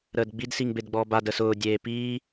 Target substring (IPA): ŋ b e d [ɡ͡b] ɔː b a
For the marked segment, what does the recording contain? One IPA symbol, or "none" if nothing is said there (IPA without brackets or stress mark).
ɡ͡b